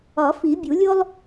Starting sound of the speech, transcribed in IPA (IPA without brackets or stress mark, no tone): ɒ